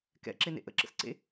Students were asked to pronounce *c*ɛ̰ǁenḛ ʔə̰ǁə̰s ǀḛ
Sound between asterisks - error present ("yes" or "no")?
yes